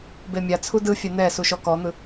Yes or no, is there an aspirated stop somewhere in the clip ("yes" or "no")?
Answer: yes